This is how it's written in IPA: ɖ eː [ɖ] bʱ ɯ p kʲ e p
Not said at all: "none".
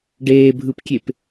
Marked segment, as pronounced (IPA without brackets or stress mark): none